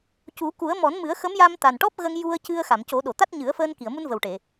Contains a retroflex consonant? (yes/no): yes